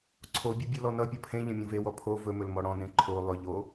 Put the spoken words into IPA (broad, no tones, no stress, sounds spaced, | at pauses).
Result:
ǀʰ o bʲ ɵ bʲ o l ɔ n ʌ pʲ ʌ pʰ ẽ ʎ ẽ mʲ õ v e w ɔ pʰ o v ɵ m ɵ l m ɔ ɽ ɔ̃ n ẽ ǃʰ o lˠ ɵ ʎ o